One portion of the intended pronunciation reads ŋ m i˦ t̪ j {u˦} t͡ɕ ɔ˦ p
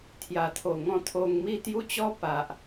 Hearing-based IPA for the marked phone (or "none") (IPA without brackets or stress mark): u˦